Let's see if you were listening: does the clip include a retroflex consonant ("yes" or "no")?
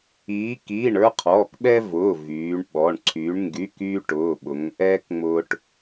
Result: yes